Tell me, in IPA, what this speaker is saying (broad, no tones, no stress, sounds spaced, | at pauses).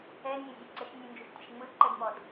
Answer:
ɛ nʲ ɛ zʲ ɘ ǀ ɘ ʃ nʲ ɯ n d͡ʒ u ʃ tʲ ɘ ʃ ŋ͡m ɯ ǃ ɘ d m ɔ d